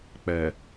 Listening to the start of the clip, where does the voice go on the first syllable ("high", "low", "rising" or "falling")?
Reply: low